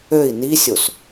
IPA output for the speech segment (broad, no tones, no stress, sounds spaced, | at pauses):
ø i̯ n i sʲ o s